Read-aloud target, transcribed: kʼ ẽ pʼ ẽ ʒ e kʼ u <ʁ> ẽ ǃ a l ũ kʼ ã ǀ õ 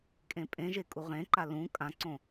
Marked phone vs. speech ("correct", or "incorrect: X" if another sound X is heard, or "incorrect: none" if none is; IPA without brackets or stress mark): correct